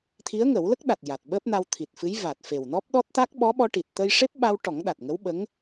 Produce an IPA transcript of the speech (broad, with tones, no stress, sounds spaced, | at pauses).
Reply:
t̪ʰ i˧˥ ə̯ ŋ ə˨˩˦ w l ə˦˥ k̚ ɗ a˨˩ t̚ j a˨˩ t̚ ɓ əː˦˥ p̚ n a˧ w t̪ʰ i˨˩ t̚ f ɨ˧˥ j v a˨˩ t̚ f e˨˩ w n ɔ˦˥ p̚ ɗ ɔ˦˥ t̚ t̪ a˦˥ k̚ ɓ ɔ˧˥ ɓ ɔ˧ ʈ i˨˩ t̚ t̪ ə˧ j ʂ e˦˥ p̚ ɓ a˧ w ʈ ɔ˨˩˦ ŋ ɗ a˨˩ t̚ ŋ ə˧˥ w ɓ ə˧˥ ŋ